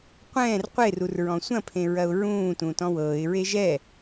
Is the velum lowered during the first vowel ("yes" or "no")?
yes